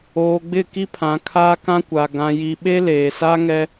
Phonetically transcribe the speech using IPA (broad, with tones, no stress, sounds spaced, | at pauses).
oː˨ ɡ͡b ɪ˦˨ k i˦ pʰ ã˨ kʰ aː˦ k ã˦ kʷ a˨ ɡ ã˨ j i˨ ɓ e˦ l eː˨ s a˦ ŋ ɛ˦